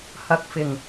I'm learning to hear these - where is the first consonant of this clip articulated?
throat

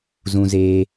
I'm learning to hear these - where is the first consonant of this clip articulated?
tongue tip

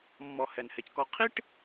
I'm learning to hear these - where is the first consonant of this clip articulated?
lips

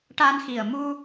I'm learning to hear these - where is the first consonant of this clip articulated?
retroflex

